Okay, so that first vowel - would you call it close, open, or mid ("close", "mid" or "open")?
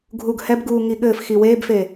close